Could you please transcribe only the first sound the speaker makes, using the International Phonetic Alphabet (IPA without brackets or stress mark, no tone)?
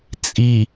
t͡sʼ